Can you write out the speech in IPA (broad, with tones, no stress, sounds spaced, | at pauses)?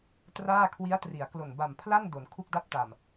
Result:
t r aː˥˩ kʰ w i˦˥ a̯ t r i˩˦ a̯ k l o˨˩ n b a˨˩ m pʰ l a˥˩ n d o˩˦ n kʰ u˥˩ k̚ d a˥˩ p̚ t a˨˩ m